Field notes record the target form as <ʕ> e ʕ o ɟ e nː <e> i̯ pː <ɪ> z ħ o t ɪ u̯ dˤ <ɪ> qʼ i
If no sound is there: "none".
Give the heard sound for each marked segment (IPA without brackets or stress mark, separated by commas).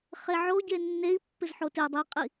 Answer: χ, e, ɪ, i